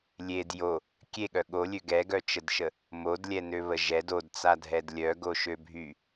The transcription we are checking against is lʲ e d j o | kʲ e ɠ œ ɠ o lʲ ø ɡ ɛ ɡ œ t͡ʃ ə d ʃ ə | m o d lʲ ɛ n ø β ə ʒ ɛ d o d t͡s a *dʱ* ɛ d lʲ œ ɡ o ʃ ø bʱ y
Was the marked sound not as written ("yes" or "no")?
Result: no